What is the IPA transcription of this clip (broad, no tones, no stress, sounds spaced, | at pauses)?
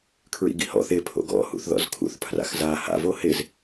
kʰ ɹ ḭ ɡ ḭ h ɔ̰ θ ɪ pʰ o̰ ɡ ɔ̰ h ṵ θ ð ɔ̰ z kʰ ṵ θ pʰ r a̰ x z a h a̰ v o h ɪ z